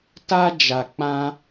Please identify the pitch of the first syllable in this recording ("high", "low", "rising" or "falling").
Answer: high